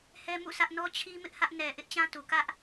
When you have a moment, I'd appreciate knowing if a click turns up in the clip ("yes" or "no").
no